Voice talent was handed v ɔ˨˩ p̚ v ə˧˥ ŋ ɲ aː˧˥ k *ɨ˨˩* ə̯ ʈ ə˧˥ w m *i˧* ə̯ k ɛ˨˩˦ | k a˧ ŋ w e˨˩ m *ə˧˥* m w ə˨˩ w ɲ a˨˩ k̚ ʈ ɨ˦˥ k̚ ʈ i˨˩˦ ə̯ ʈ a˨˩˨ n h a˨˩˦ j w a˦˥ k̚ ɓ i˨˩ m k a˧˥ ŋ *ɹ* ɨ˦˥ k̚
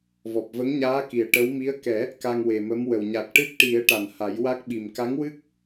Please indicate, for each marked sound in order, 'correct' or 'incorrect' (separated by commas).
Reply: incorrect, incorrect, correct, incorrect